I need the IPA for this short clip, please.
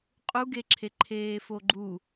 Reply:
qʼ u ɡ e ǁʰ e ǃʰ eː f o ɡ͡ǃ u

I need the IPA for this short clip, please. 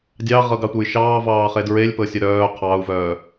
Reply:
dʲ ɑ ʁ ɤ ɡ ɑ tʷ ə j ʃ ɑː v ɑː χ e d ɹ e lʲ p ɤ sʲ ə ɾ œː qʰ ɑ u̯ v œː

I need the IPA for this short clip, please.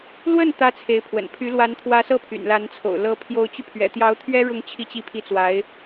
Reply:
l w ə˥˩ n t̪ ä˥ t͡sʰ e˧˥ ɪ̯ pʰ w ə̰˨˩ n pʰ y˧˥ l w a˧˥ n t̪ʰ w ä˧˥ s ɤ˥˩ pʰ y̰˨˩ n l a˧˥ n t͡sʰ o̰˨˩ ʊ̯ l ɤ˧˥ pʰ j o˧˥ ʊ̯ t͡ɕ y˧ pʰ ɥ ɛ̰˨˩ t̪ j ɑ˧˥ ʊ̯ t̪ʰ ɥ ɛ˥ ɻ ʊ˥˧ ŋ t͡ɕʰ i˥˧ t͡ɕ i˥˧ pʰ i˥˩ t͡s w a˧˥ ɪ̯

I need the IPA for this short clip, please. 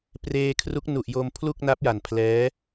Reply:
p r eː˧ kʰ r u˦˥ k̚ n u˨˩ ʔ j o˧ m pʰ l u˥˩ k̚ n a˦˥ p̚ j a˨˩ n pʰ l ɛː˦˥

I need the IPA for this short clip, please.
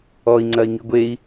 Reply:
ɔ i̯ ŋ͡ǀ ɐ i̯ ŋ i ɡʷ e i̯

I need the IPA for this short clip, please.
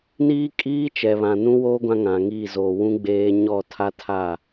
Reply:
n iː˦ kʼ iː˦ t͡ʃ ɛ˨ β ã˨ n ũ˦ w oː˦ ɡʷ ã˦ ŋ ã˨ ŋ iː˦˨ z oː˨ w ũ˦ ɡ͡b eː˦ ɲ ɔ˦˨ tʰ a˦ tʰ a˦˨

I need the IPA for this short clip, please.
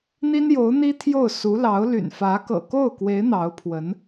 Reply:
n̪ i˥ n j o˧˥ ʊ̯ n̪ i˥ t̪ʰ j o˥˩ ʊ̯ s u˧˥ l ɑ˧˥ ʊ̯ l y̰˨˩ n f ä˧˥ k ɤ̰˨˩ k o˥˩ ʊ̯ k w e˧˥ ɪ̯ n̪ ɑ˧˥ ʊ̯ pʰ w ə˧˥ n

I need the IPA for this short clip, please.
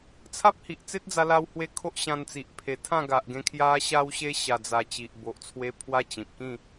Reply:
t͡sʰ a˦ p̚ h i˨ ʔ t͡s e˦ t̚ d͡z a˧ l a˧ w h w e˧ kʰ o˦ ʔ ɕ ã˧ n t͡s i˨ ʔ pʰ e˨˩ t̪ʰ ã˥˧ ɡ a˨ ʔ ɡ ẽ˧ kʰ j a˧ ɕ a˧ w ɕ e˧ ɕ a˨˩ d͡z a˨˩ t͡ɕ i˨ ʔ b o˨ ʔ t͡sʰ w e˧ pʰ w a˦ t͡ɕ ĩ˨ p̚ k ĩ˥˧

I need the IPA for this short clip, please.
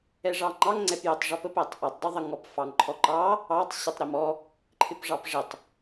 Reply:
ɛ ʐ ɑ ŋ͡ǃ ɑ ŋ ŋ͡ǀ ɛ p j ə tˤ ʐ ɔ p ə p æ tˤ ʔ ɔ tˤ dˤ ɪ ðˤ ə ŋ ɔ p f ɑ ŋ ǃʰ ɔ ǃ ɑ | ɑ tˤ ɕ ɛ tˤ ɾ ɪ m ɔ | ǃʰ ɪ p ʐ ɑ p ʐ ɪ tˤ

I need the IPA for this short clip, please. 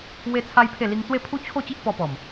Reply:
w e˦ t͡sʰ a˦ j pʰ e˥˧ l i˧ ŋ t͡s w e˥˧ pʰ u˦ t͡ɕʰ o˥˧ t͡ɕ i˦ ʔ p ɔ˧ p ɔ˨˩ m

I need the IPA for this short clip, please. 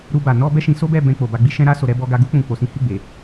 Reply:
ɾ u˧ b a˨ n ɔ˧ b ɛ˦ ʃ ĩ˧ s o˦ b ɛ˦˨ b ɛ̃˧ k͡p o˨ b a˧ ɡ͡b i˧ ʃ ɛ̃˧ ɾ a˧ s o˨ ɾ ɛ˧ b ɔ˧ ɡ a˧ ɡ u˦ k͡p ũ˧ k͡p o˨ s ĩ˨˦ h i˦˨ ɡ͡b e˨

